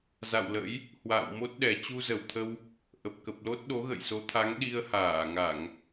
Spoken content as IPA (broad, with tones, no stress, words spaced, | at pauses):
za̰˧˨wlə̰˧˥j | hwa̰ː˧˨w mo˦˥t̚ɗɛ˨˩ t͡ɕu˧zə˨˩wt̪ʰə˧w | ʔə˨˩p̚kə˨˩p̚lo˦˥t̚ ɗo˨˦ɣə̰˧˨jso˨˦t̪ʰa˨˦ŋ ɗi˧ə̯haː˧˩ŋa˧˩˨ŋ